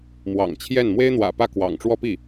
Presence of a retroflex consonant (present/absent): present